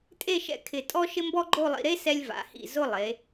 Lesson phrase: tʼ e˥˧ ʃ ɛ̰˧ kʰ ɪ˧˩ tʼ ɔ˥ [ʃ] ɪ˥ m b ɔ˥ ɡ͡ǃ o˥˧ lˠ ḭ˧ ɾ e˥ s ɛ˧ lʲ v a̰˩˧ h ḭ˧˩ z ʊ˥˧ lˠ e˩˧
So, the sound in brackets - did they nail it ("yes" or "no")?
yes